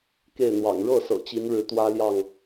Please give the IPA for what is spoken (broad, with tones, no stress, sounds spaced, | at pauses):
k e˥˨ ɪ̯ n̪ w ɑ̰˨˩ ŋ ɻ ɤ˥˨ s ɤ̰˨˩ t͡ɕ i˨˦ n ɻ ɻ̩˨˦ t̪ w ä˦ l j ɑ˥˨ ŋ